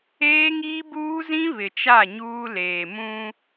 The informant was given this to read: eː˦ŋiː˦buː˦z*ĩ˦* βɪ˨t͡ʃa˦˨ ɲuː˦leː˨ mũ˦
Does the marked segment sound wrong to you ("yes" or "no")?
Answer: no